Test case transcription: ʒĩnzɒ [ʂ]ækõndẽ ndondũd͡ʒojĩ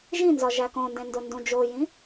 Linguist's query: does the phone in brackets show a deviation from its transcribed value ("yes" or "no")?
yes